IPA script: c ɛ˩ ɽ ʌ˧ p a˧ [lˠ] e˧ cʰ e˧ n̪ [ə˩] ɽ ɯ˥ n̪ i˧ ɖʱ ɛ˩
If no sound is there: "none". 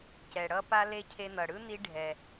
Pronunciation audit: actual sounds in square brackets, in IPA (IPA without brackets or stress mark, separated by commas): l, ʌ˩